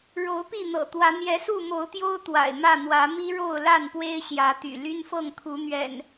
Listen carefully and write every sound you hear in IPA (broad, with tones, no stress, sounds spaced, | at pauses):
ɻ o˨˦ ʊ̯ p i˥˨ n̪ ɤ̰˨˩ t̪ w ä˨˦ n̪ j ɛ˨˦ s u˥˨ m o˨˦ ʊ̯ t̪ j o˦ ʊ̯ t̪ w a̰˨˩ ɪ̯ m ä˥˨ n̪ w ä˨˦ m i˦ ɻ o˥˨ ʊ̯ l a˥˨ n p w e˦ ɪ̯ ɕ j ä˨˦ t̪ y̰˨˩ l y˦ n f ɤ˥˨ ŋ t̪ʰ u˨˦ n̪ ɥ ɛ̰˨˩ n